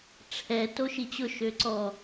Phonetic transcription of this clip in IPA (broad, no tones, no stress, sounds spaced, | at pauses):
ʈ͡ʂʰ ɛ t o ʃ i t͡ɕ ʊ ʃ ø ǀ ɔ